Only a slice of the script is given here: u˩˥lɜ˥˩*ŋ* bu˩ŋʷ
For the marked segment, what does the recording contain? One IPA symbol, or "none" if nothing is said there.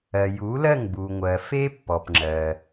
ŋ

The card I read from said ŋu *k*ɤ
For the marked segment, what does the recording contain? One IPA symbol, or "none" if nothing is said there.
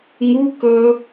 k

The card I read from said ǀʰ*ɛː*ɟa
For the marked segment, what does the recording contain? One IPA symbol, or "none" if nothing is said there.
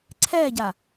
ɛː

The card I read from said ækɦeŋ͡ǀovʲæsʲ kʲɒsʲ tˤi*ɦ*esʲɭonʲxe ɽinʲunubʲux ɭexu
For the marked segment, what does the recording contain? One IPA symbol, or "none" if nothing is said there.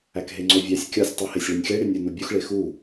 h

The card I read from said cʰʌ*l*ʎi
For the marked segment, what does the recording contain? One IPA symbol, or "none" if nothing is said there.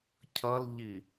l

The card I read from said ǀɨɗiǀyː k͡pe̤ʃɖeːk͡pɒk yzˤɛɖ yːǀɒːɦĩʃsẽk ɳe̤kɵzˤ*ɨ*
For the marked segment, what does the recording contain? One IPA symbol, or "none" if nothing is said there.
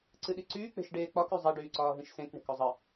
ɨ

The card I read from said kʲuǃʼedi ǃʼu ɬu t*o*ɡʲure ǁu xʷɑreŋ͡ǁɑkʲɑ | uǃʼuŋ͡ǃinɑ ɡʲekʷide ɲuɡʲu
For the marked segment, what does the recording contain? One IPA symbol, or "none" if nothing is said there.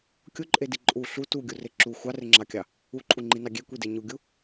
u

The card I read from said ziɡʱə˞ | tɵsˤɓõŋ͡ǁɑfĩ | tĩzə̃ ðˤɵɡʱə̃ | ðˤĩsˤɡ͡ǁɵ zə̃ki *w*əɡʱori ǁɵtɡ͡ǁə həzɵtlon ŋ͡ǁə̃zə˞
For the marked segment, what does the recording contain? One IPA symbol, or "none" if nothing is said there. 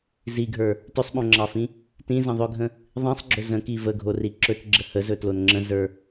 v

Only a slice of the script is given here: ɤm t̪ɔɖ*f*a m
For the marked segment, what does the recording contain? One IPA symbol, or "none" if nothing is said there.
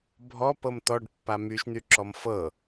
pː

